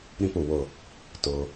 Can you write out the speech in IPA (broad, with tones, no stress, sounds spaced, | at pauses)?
ɾ ĩ˥˧ p u˩ w ʊ˧˩ | t ʊ˩